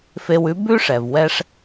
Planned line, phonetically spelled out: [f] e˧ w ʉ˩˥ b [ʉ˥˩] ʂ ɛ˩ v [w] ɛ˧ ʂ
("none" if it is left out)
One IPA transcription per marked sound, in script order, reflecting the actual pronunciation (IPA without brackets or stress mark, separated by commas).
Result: f, ʉ˥, w